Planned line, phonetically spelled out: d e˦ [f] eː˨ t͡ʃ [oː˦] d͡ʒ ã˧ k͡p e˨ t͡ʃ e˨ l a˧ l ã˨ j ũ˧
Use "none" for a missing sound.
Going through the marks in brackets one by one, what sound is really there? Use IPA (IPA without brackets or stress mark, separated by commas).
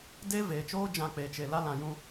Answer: v, oː˦